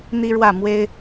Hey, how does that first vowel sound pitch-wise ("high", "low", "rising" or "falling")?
high